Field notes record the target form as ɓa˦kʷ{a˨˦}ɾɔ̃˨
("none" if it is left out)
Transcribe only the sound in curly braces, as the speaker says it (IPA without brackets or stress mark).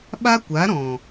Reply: a˨˦